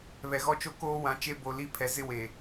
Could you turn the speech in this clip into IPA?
β ɛ˨ ɣ ɔ˦ t͡ʃ o˦ k oː˦ w ã˨˦ t͡ʃ e˦ b o˨ l i˦ pʰ ɛ˨ z ɪ˦ w e˨

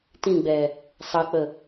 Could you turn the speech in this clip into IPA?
t ĩ ɡ͡b ɛ | sˤ ə k͡p ə

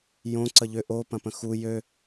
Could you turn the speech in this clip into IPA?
j õ ǀ ə ʎ ʏ ʔ o p ɐ̃ p ə̃ x u j ø

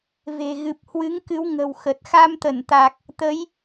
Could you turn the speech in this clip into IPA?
v e̤˨˩ ɣ ɨ˨˩ p̚ h w ɨ˨˦ ŋ k ɨ˨˦ w ŋ ə̤˨˩ w x ə˨˩ t̚ x a˧ m t̪ ə˧˩ n t̪ a˨˩ k̚ | t̪ ə˨˦ j

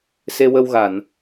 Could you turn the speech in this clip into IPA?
s e˧ w ə˧ w ɣ a˨˩˨ n

